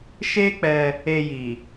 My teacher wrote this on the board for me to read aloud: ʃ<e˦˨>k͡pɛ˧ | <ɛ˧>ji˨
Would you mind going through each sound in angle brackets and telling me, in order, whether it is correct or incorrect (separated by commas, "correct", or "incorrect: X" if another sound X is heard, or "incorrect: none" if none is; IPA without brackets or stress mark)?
incorrect: e˦, incorrect: e˧